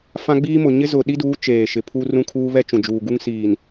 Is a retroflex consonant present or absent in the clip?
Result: absent